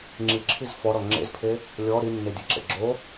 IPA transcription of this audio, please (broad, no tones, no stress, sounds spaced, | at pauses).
ŋ͡ǁ i ǁʰ i z f ɔ ɾ ɔ ŋ͡ǁ ḛ z pʰ e | lʲ ɔ ɾ i nː e dʲ ɨ ǁ ḛ ɡ͡ǁ o